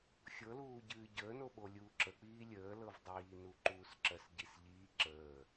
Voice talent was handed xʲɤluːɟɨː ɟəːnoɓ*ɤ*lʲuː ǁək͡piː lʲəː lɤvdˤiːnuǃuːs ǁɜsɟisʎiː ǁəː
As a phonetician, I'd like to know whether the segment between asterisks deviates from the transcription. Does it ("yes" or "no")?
yes